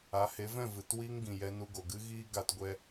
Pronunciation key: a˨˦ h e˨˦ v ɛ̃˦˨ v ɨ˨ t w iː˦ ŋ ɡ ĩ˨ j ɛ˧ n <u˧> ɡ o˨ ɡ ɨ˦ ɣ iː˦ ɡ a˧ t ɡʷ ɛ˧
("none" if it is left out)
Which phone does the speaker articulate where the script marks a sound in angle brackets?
u˧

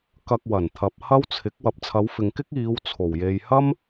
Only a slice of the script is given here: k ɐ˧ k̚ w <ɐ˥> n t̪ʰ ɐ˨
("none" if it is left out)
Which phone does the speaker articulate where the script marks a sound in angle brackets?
ɐ˨˩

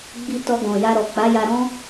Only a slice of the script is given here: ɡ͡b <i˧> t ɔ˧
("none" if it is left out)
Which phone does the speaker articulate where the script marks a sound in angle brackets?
i˧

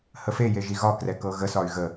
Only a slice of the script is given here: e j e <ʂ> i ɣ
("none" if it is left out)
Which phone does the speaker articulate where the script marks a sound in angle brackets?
ʒ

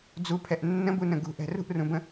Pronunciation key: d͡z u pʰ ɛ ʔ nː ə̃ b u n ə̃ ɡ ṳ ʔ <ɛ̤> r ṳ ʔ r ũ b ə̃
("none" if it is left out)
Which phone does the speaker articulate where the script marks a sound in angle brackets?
ɛ̤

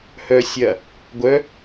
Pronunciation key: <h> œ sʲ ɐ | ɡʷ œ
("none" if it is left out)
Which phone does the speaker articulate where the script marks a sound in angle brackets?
h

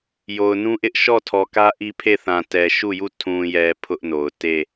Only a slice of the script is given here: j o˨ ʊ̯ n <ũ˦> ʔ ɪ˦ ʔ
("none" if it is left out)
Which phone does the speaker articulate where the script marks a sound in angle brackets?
ũ˦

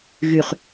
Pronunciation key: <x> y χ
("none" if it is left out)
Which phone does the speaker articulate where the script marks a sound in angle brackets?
ɣ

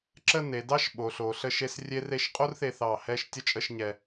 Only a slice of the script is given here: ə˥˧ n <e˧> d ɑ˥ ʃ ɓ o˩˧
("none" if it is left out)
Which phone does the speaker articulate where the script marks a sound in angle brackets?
e˩˧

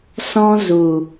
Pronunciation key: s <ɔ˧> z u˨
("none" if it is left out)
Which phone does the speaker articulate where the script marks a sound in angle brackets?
ɔ̃˧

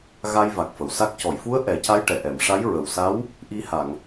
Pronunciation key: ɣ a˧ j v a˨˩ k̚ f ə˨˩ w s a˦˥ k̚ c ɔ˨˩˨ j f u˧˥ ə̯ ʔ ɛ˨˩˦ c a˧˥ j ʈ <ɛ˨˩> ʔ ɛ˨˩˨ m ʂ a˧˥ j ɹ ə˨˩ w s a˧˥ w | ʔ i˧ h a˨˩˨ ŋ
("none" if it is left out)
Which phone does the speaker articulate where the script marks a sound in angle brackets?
ɛ˨˩˨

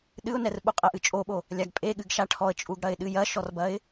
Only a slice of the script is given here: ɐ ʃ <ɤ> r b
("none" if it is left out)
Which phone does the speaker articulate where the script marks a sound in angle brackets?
ɔ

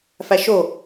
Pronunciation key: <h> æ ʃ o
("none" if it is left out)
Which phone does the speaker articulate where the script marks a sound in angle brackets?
f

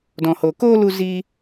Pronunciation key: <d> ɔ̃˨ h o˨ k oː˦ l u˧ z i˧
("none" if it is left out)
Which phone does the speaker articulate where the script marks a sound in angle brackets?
d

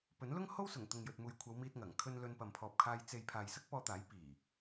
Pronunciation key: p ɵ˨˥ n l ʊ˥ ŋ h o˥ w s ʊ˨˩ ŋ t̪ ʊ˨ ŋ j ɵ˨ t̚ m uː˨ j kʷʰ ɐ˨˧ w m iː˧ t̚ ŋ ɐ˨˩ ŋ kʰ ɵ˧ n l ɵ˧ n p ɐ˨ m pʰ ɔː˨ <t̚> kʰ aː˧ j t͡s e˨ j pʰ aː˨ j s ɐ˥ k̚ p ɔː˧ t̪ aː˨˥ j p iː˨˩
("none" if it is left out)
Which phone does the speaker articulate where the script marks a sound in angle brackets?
p̚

